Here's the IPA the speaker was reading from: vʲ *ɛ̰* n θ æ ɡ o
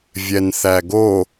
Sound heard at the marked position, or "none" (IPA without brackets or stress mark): ɛ